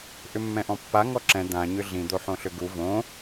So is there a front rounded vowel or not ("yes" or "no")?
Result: yes